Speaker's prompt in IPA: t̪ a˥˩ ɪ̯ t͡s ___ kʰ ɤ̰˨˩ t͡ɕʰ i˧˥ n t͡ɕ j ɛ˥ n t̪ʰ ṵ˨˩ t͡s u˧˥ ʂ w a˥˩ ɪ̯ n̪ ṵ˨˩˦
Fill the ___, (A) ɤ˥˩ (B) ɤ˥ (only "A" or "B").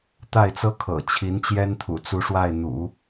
B